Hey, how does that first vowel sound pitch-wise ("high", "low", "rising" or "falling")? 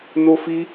high